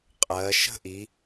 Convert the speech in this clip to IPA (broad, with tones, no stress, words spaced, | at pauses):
qʼɜ˩˧ ʃə̤˥ʔi˩˧